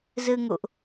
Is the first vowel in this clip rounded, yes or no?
no